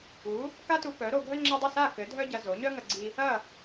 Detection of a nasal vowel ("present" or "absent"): absent